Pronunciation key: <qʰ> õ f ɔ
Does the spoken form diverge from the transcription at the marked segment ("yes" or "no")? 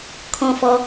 yes